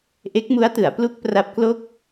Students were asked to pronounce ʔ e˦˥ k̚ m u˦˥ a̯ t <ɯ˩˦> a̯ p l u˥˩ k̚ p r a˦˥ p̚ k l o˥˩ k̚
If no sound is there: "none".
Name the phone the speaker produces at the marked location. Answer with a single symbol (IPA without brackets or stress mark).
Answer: ɯ˩˦